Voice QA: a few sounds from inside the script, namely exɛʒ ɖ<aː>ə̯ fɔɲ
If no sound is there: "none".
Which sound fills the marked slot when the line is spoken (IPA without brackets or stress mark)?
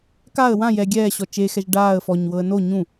aː